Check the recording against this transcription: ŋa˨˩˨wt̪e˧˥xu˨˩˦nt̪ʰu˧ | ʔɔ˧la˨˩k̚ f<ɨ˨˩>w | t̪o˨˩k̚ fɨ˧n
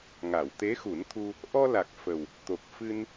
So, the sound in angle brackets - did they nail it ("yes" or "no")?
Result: no